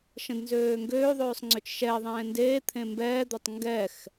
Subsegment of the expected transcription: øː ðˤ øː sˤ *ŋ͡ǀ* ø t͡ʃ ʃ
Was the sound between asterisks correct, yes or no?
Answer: yes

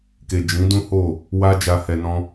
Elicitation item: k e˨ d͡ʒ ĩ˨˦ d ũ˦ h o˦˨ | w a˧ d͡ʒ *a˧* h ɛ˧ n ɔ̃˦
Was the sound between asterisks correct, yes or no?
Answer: yes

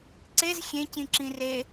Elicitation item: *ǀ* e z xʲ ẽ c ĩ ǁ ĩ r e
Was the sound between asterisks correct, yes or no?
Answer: yes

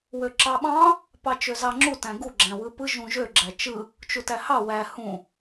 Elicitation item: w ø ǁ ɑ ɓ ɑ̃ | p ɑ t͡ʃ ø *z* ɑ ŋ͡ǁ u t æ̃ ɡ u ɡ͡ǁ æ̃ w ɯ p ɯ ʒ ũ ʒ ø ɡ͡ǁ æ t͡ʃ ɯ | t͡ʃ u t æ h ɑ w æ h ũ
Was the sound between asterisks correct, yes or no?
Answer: yes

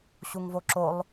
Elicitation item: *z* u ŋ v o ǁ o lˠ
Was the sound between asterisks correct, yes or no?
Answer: no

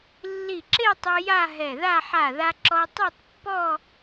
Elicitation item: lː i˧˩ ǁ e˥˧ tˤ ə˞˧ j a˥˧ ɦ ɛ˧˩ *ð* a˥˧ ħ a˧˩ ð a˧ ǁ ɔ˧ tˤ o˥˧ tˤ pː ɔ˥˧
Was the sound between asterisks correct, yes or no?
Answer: yes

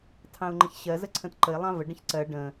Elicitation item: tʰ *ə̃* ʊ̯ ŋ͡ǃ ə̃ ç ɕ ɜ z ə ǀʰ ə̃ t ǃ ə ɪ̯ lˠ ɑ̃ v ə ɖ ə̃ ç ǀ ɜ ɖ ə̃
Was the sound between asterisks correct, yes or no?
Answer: no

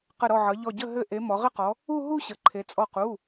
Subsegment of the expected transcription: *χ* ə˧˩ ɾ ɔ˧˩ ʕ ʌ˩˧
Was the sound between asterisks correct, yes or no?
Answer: no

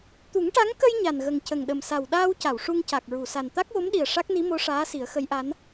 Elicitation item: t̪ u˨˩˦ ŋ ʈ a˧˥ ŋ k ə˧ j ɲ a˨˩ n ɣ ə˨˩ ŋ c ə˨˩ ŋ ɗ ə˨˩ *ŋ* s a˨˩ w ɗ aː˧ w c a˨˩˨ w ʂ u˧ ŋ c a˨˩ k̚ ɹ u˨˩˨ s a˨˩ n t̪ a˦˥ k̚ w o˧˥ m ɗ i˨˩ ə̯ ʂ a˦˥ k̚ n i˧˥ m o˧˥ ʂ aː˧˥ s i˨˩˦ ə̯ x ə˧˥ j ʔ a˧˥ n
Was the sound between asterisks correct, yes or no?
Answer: no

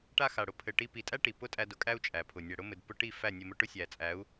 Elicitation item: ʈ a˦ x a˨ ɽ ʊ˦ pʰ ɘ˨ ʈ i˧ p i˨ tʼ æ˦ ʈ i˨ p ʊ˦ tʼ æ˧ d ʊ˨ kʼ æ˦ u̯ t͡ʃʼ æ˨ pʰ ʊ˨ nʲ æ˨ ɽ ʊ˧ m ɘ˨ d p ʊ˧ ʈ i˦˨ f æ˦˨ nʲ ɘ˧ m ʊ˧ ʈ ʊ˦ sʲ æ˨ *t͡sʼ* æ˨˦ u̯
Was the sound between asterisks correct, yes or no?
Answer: yes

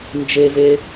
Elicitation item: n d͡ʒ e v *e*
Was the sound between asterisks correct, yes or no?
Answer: yes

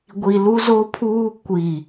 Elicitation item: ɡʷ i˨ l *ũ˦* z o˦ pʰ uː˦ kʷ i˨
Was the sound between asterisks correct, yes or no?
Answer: no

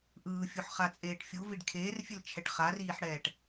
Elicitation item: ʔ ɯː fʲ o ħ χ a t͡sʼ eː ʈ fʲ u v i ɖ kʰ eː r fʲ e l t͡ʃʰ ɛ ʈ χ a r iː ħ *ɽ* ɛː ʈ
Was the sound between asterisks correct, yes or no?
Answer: yes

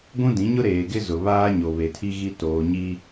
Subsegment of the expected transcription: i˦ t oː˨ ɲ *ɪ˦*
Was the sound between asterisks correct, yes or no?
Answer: no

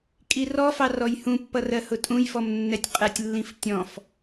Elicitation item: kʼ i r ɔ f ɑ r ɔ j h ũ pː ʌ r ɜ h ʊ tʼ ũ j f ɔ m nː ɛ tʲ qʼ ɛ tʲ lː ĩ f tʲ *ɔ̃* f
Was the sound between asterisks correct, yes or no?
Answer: yes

